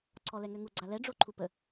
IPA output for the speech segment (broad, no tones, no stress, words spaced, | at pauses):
ǀʰɔlɛŋøŋu ɡ͡ǀalɛ ɖ͡ʐoǃʰupə